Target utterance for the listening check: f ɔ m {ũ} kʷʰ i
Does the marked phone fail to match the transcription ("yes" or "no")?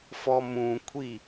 no